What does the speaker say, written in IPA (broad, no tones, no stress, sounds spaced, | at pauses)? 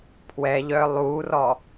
pʰ w ɛ ʎ œ lˠ u r ɔ